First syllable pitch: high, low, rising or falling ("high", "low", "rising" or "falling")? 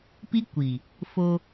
high